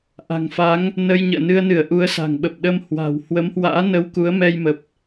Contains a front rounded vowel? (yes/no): no